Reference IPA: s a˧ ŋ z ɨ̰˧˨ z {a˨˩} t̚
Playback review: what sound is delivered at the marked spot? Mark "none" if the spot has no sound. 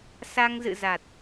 a˨˩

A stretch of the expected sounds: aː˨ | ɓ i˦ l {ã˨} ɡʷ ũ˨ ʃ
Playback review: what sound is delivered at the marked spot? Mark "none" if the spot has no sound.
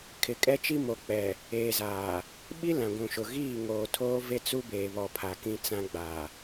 ã˨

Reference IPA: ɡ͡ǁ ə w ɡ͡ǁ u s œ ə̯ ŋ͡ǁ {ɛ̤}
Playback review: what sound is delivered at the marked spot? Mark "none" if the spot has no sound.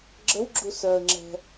ɛ̤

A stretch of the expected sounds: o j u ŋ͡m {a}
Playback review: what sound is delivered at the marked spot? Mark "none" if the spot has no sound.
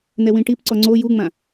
ã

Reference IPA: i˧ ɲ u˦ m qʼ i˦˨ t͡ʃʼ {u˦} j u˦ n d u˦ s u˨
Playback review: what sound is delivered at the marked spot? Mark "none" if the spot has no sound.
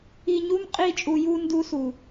u˧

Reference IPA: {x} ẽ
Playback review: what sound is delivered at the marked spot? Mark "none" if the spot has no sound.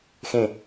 x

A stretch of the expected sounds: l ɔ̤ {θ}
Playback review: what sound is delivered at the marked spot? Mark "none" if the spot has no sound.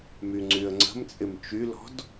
d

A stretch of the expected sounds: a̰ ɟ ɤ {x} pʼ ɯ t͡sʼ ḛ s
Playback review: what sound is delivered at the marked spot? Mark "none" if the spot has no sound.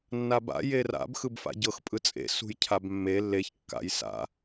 x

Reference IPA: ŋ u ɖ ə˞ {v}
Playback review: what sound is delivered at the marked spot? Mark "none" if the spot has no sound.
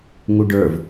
v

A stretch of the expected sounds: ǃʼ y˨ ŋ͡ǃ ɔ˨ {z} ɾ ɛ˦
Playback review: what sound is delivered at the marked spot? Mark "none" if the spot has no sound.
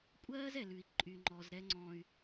z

